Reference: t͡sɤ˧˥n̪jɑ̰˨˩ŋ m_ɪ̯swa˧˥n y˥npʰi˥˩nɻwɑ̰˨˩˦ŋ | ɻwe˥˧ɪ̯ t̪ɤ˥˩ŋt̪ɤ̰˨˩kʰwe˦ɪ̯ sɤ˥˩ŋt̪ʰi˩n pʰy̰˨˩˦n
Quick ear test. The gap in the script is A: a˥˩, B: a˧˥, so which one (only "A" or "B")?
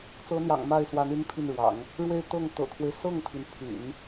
A